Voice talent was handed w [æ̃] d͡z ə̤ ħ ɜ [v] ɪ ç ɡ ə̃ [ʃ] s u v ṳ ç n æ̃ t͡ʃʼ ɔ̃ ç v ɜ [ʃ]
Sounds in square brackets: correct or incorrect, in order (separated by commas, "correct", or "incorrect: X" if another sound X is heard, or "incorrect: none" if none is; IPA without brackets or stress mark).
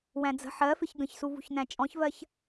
correct, incorrect: f, incorrect: ç, incorrect: ç